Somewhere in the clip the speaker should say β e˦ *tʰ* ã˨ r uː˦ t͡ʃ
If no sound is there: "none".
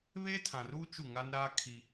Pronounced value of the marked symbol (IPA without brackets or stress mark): tʰ